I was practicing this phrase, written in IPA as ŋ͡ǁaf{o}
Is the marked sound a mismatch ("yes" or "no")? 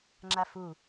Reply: yes